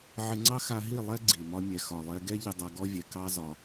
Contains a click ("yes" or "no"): yes